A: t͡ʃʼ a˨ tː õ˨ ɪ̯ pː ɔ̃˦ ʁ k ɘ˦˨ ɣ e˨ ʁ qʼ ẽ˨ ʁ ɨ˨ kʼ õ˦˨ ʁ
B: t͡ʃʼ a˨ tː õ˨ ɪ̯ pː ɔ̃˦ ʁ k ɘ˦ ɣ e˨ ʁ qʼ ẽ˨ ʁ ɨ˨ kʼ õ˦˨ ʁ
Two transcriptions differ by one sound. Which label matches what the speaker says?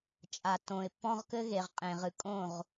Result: B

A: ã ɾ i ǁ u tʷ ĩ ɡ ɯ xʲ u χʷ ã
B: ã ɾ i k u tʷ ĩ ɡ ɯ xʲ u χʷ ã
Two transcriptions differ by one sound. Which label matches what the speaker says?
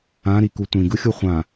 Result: B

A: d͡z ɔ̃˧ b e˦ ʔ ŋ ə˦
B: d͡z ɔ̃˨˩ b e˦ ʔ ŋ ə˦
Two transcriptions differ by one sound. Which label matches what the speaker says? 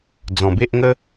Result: B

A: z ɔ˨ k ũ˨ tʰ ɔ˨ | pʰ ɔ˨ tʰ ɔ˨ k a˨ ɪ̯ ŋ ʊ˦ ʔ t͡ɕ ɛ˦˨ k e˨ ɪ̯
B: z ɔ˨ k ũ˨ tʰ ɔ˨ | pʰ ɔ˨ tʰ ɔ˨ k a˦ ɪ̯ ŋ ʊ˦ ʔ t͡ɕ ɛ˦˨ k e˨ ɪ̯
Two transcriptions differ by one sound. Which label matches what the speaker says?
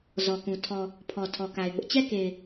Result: A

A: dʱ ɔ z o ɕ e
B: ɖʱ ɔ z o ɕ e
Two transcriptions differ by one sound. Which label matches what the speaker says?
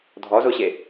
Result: A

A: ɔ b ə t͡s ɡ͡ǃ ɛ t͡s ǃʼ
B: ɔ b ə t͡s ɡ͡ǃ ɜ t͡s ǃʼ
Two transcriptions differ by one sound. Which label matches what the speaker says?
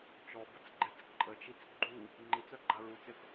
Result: A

